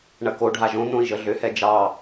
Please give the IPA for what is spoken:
ɳ ɐ k o ɖʱ a ʒ õ n̪ õ i̯ ʒ ə ɮ ʏ h ɛ d͡ʒ ɑ

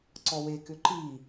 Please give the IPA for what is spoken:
ǀ ɔ w e k ʏ ǃ i

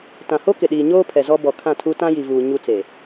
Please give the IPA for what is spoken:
t ã˨ h o˦ k ɪ˨ ɗ iː˨ ɲ oː˦ pʰ ɛ˨ z ɔ˦ b ɔ˨ kʰ ã˦˨ tʰ u˦ t ã˦ j i˨ v uː˨ ɲ u˦ t͡s e˨

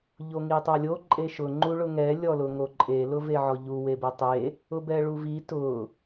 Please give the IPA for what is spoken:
ʎ o ŋ i tˤ a lʲ o ǃʼ e ʃ ʊ ŋ͡ǃ u ɭ ʊ ŋ ɛ lʲ ɔ l ʊ ŋ o ǃʼ e l ʊ v e ʕ ɔ ʎ u w e b e tˤ e | ʊ b ɛ ɭ u v i t ʊ

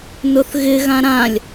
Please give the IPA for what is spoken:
n ʊ θ ɣ ɪ ɣ ã ɾ ã lʲ

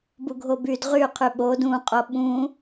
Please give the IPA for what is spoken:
b u ɡʱ o b y d ʁ y qʰ y ɓ o d ũ qʼ o ɓ ũ

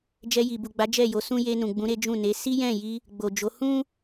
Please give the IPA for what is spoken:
d͡ʒ ɛ˧ j i˨ b u˨ ɡ͡b a˨˦ d͡ʒ ɛ˦˨ j o˨˦ s ũ˦ j e˧ n ũ˨ ɡ͡b ũ˨˦ ɾ e˦ d͡ʒ ũ˦˨ n e˨˦ s i˦ j ɛ̃˦˨ j i˧ | ɡ͡b o˨ d͡ʒ o˨˦ h ũ˦

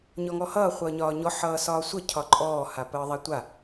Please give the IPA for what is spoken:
ɲ ɔ ŋ ɔ h ʌː χʷ ʌː ɲ ɒː ɲ ɔ ħ ʌː s ɒː sʷ ʌ cʰ ɒ ǃʼ ɔː h a p əː ðˤ a tʷ a

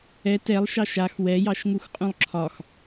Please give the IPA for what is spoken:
ɛ t ɛ lˠ ʃ ɑ ʃ a x w ɛ j ɑ ʃ ŋ u x qʼ ũ lˠ ǁʰ ɒ x

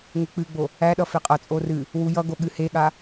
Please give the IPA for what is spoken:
ŋ e k͡p ɨ ɡ͡b o | æ ɗ ʌ f e qʼ ʌ t͡sʼ o r ɨ | w u j ʌ ɡ o ɠ ɨ h e ɠ a

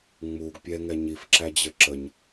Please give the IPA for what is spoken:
ŋ͡m u ɡ pʲ ɛ ŋ ɛ ɲ i f ǁ æ d͡ʑ ə ǁ ə ɲ

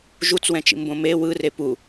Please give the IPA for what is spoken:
ʒ u t͡s w ɛ̃ t͡ʃ ḭ m b õ m e w ɯ r e p u

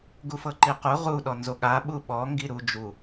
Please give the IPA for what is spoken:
ɡ u f ɤ ǃ i q u ʁ u ɗ ɔ n z o ɠ a ɓ u ɓ ɔ ŋ ɡ i ɾ u d͡ʒ u

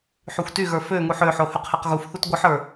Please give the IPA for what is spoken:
ħ y xʷ t y ɣ ə˞ f ø ŋ u ħ ø ħ o h y q h e q ɣ u f θ u t ɡʷ ɨ ħ ə˞

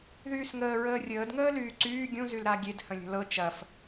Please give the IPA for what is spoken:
ð yː s ŋ əː ɹ əː rʲ əː d ŋ əː l yː ǀ yː ɡʲ ũ z y l ɾ a ɡʲ e d h ə̃ lʲ ə̤ l ɤ t͡ʃ ɐ f

